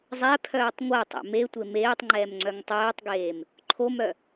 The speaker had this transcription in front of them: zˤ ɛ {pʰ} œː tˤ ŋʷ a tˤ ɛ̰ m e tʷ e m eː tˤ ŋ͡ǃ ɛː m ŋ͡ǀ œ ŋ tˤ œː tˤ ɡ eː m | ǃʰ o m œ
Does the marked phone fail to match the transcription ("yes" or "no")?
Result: no